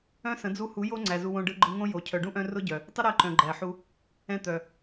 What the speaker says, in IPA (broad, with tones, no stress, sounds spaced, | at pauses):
œ̃˦ s ə̃˨˦ d͡z u˧ h u˨˦ j o˦ ŋ͡ǀ æ˨ z u˧ w õ˧ ɖ ɯ˧ ɡ͡ǃ ɯ˧ ŋ õ˦ j o˨ cʰ œ˨ ɖ ũ˦ ʔ œ̃˧ r ʊ˦ ɟ œ˨ | tˤ ə˦ ɾ æ˧ ǃ œ̃˨ ɡ͡ǃ æ˨ ħ u˧ | ɛ̃˧ t̪ œ˨